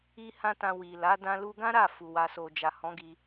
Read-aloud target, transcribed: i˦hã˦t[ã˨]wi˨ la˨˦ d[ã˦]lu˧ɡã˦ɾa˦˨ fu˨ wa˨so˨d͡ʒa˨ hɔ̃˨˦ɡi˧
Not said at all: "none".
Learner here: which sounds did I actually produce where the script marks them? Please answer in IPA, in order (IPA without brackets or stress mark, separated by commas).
ã˧, ã˧